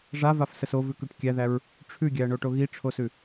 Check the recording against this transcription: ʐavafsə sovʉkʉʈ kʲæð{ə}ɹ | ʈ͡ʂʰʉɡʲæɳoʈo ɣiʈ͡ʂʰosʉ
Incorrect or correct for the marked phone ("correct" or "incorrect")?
incorrect